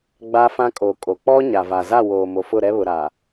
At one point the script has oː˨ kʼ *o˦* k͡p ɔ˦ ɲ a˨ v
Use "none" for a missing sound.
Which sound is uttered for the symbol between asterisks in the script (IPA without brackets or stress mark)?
o˨